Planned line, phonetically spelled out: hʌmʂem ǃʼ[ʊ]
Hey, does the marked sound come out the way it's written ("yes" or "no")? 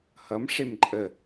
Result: no